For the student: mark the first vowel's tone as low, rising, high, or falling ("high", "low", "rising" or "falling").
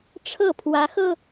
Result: falling